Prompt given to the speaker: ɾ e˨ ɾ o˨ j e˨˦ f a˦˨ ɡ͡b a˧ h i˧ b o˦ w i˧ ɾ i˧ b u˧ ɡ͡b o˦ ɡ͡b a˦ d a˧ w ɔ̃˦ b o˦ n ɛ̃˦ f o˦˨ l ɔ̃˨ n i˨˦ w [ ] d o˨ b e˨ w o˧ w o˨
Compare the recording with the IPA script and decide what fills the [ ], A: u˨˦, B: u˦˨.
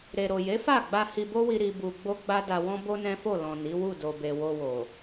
B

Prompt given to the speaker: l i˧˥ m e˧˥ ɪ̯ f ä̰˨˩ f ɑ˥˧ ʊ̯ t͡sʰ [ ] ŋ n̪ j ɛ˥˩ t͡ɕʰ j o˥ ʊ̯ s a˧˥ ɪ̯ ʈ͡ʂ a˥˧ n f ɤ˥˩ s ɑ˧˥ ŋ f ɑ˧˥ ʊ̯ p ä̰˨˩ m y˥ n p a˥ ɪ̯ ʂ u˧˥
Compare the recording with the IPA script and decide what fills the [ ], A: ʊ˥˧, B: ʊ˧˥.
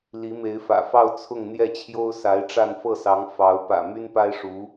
A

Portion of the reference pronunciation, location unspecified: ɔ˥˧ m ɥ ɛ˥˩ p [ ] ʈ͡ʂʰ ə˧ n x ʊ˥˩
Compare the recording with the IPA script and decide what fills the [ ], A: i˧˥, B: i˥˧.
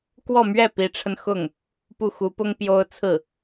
A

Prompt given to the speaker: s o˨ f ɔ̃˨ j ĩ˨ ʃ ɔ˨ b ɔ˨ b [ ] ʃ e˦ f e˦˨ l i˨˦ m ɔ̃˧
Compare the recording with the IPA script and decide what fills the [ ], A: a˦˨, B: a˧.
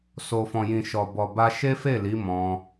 B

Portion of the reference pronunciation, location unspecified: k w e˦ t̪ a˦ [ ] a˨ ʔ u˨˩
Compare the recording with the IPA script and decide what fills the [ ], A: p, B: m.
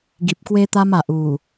B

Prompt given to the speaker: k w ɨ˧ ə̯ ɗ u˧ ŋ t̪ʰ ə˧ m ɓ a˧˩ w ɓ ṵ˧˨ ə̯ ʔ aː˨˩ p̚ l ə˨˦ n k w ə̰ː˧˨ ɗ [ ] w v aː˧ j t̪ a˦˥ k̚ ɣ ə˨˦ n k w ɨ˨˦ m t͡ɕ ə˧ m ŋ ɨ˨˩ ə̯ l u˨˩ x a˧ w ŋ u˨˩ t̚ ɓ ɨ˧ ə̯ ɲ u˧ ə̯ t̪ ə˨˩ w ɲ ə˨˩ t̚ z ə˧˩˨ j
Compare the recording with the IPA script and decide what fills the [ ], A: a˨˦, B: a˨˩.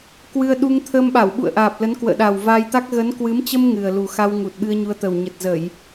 B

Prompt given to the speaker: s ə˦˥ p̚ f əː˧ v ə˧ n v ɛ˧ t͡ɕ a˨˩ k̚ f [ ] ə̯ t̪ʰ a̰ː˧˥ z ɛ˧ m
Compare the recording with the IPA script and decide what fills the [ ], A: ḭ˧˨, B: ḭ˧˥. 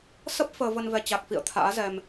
A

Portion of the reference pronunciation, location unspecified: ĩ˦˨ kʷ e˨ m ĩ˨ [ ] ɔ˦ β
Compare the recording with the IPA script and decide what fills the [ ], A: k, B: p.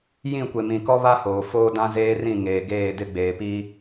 A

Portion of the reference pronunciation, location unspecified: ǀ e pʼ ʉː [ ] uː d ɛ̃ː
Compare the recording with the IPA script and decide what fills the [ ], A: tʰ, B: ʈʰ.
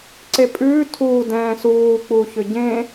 A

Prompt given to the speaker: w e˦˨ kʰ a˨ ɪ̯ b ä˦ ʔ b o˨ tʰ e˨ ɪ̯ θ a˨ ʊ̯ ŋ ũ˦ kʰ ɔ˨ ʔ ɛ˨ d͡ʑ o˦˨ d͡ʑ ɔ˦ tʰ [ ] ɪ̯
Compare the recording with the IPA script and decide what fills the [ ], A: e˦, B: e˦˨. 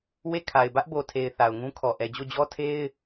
A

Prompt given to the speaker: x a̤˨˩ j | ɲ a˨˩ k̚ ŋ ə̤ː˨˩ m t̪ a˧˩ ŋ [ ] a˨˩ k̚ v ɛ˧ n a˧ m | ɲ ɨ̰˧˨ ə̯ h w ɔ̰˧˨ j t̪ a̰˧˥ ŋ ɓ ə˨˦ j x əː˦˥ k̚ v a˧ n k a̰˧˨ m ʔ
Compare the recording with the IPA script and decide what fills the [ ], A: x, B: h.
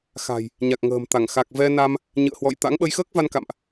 A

